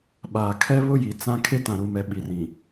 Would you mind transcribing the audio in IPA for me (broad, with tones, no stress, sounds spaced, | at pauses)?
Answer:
ɓ aː˨ kʰ ɛ˦ β ʊ˦ j i˨ t͡s ã˦ kʰ e˦ t ã˨ ɾ u˨ m ɛ˨ ɓ i˨ r ĩ˨